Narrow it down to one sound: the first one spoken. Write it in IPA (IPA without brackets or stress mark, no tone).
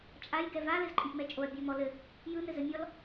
t͡ʃʼ